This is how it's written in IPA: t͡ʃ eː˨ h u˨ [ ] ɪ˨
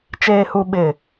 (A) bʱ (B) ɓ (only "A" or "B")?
B